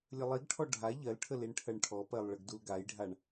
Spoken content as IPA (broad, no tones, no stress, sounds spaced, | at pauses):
lʲ ə lˠ i ɡ ʈʰ ɔ ɖʱ a ʎ ɜ l ʈʰ ə l i ɳ ʈʰ ɜ ɳ ʈʰ ɔ p ɜ lˠ ɭ ə ɡ d u l ɡ a j ɖʱ a ɳ